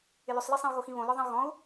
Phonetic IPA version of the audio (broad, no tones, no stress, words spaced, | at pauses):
ɪlʏsˤlɜsˤĩu̯ ɣoxĩβõlɔ ðˤĩu̯ɣɔ̃u̯